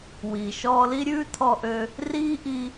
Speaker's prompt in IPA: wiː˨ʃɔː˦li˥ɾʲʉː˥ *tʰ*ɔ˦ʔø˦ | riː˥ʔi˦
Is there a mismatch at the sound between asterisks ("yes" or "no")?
no